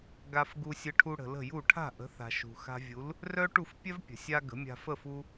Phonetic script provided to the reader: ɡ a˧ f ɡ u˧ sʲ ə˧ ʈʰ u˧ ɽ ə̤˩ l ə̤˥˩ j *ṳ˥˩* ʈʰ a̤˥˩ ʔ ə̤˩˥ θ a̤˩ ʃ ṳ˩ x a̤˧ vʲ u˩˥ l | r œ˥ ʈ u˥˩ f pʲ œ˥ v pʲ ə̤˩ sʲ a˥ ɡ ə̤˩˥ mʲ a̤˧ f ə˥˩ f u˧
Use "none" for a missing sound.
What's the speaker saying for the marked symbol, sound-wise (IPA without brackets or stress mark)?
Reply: u˥˩